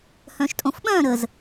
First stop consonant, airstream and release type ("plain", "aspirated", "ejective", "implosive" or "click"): ejective